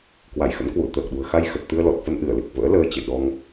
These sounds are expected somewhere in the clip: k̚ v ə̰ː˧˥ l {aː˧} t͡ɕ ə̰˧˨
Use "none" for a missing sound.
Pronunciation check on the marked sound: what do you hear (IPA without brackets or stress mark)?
əː˧